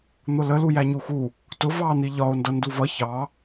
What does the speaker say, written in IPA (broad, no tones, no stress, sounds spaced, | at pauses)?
n̪ ʊ l ə l u j æ ɲ u x u | t ʊ v ɑ n̪ i ʎ ɒ o̯ n d ʌ n d u v ʌ ç ɑ